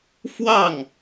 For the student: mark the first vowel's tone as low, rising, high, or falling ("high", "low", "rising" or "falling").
falling